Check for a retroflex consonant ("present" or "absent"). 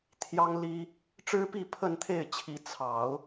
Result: present